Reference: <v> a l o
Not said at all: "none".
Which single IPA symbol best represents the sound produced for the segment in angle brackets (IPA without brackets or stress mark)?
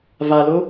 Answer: v